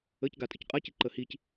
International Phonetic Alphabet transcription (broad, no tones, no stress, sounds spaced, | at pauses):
ə c ɡ a tʼ ə c qʼ a c i ǃ ə h i c